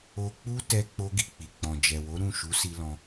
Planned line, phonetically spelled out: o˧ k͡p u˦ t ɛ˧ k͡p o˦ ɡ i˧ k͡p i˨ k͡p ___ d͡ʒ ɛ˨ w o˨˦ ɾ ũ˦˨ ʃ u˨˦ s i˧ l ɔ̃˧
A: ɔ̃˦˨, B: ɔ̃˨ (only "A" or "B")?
B